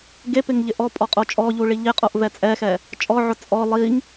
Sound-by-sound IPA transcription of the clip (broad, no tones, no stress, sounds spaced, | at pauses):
ɡ e p ɪ ŋ ʎ ɪ ʔ ɔ pʼ ɔ qʼ o t͡ʃʼ ɔ ʎ u ɭ i ʎ ɪ qʼ o ʔ v ɛ t͡sʼ ɛ x ɛ | t͡ʃʼ ɔ ʕ ʊ t͡sʼ ɔ lˠ i ŋ